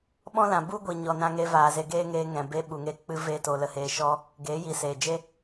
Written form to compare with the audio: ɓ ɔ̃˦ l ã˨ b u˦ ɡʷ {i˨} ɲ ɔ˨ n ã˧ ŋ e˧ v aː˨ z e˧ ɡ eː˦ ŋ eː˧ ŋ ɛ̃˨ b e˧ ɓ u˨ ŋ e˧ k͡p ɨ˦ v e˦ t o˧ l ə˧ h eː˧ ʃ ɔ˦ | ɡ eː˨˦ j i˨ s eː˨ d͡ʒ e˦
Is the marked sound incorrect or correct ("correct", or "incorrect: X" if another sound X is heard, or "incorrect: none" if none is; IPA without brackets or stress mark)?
correct